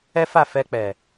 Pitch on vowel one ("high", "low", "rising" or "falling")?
high